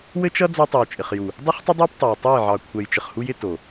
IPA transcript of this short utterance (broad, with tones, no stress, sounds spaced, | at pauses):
w ɘ˦ t͡ʃ ʌ˦ d͡z o˦ tˤ u˨ j t͡ʃʼ ɪ˨ χ j u˨ | dˤ ʌ˦ χ tˤ ɪ˦ dˤ ɑ˦ p tˤ o˨ j tˤ e˦˨ j ʕ ɑ˨ kʷʰ ɛ˨ j t͡ʃ ɪ˨ χ h u˦ j ɪ˦ t o˨